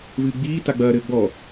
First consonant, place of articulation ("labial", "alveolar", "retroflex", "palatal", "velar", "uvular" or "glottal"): labial